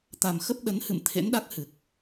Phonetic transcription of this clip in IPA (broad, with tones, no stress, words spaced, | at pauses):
t̪a˨˩mxə˦˥p̚ɗə˨˦nhɨ̰˧˨m t̪ʰḛ˧˥nɗa˦˥k̚hɨ˨˩k̚